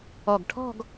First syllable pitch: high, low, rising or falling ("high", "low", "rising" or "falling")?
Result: low